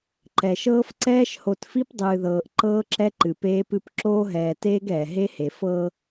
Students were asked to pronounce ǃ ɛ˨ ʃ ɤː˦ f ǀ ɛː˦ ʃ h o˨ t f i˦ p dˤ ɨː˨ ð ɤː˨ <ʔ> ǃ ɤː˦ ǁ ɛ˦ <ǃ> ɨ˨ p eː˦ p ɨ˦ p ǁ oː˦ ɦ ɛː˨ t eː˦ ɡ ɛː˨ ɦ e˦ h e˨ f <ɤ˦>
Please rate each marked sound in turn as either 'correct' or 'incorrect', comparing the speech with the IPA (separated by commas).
correct, correct, correct